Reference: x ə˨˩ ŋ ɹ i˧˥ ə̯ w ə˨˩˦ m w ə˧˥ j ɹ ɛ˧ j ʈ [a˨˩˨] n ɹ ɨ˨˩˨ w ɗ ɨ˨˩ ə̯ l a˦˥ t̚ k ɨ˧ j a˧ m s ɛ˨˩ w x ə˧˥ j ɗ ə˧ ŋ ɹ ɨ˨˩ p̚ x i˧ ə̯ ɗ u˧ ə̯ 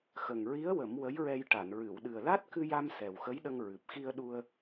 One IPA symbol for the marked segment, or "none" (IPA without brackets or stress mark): a˨˩˨